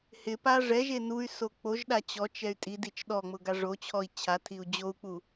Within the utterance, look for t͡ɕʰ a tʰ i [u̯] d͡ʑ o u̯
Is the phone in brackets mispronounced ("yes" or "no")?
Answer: no